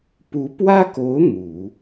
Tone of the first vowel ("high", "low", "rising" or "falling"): rising